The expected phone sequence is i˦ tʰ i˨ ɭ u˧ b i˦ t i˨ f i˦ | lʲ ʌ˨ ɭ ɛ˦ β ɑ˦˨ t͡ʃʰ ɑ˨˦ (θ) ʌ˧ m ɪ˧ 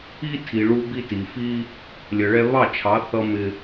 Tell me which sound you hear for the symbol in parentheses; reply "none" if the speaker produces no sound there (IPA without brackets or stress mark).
θ